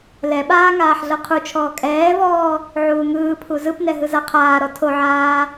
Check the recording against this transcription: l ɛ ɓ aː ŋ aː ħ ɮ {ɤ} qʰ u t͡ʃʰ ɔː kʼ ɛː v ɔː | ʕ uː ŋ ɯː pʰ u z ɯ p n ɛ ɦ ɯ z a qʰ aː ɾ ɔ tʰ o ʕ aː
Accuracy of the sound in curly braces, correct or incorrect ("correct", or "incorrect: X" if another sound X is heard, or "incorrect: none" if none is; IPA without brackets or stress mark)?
correct